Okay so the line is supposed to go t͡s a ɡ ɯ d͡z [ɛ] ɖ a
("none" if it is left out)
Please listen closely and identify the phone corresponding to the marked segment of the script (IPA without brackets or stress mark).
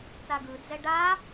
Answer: ɛ